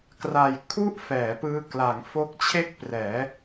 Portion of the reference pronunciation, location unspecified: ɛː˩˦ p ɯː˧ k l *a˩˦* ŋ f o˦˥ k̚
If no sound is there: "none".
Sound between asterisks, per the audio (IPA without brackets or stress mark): a˩˦